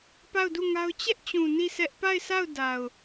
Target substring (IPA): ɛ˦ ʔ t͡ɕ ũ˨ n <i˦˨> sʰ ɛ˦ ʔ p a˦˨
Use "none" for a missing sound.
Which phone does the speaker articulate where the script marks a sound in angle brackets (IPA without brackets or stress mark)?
i˦˨